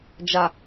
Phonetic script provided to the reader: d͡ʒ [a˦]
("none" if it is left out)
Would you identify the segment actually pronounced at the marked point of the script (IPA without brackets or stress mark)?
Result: a˨